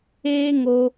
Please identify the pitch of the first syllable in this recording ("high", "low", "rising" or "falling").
high